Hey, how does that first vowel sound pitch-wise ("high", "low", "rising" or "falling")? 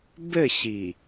falling